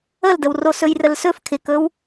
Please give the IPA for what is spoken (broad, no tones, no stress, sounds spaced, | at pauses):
ə l d ə w r o s ɵ j r ə l s ɵ f kʰ ɪ k ɵ w